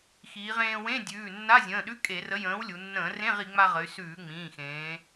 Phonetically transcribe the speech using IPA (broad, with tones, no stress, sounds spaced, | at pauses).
x iː˩˧ ʁ ẽː˧ w ẽ˧˥˧ dʲ ʉː˩˧˩ nː a˧˥˧ zʲ ə̃ː˩˧˩ ɗ ʉ˧˥˧ kʼ e˧˩˧ r ə˨˥ j ə̃ː˨˥ w lʲ u˩˧ nː ə̃ː˧˩˧ r ẽ˧˥˧ ʁ i˩˧ ŋ͡m a˧ ʁ ə˩˧ y̯ s ʉː˧˩˧ ŋ͡m ĩː˩˧˩ x ẽː˩˧